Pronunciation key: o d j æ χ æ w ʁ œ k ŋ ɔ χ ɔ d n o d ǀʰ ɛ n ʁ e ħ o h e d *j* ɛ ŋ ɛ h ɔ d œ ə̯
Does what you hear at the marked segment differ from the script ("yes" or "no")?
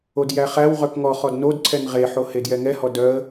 no